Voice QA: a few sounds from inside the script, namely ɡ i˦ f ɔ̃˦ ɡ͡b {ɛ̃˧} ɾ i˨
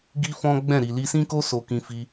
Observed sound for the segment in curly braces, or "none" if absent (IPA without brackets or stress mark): ɛ̃˦˨